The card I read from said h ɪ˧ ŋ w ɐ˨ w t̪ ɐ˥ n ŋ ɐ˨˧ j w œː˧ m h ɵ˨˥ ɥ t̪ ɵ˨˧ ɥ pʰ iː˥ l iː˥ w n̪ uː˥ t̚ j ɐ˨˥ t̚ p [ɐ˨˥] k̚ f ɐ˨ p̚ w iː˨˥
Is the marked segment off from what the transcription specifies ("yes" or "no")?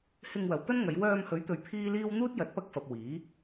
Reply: yes